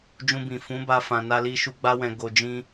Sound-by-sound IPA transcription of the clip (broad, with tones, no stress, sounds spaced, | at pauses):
d͡ʒ ũ˧ b ĩ˨ f ũ˨˦ b a˧ f ã˨ n a˧ l i˧ ʃ u˧ ɡ͡b a˧ w ɛ̃˨ ɡ o˨ d͡ʒ ĩ˧